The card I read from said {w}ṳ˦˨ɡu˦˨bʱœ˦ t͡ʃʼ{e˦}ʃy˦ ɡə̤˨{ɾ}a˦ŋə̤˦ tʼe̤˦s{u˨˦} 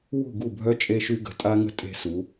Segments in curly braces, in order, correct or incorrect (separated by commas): correct, correct, incorrect, correct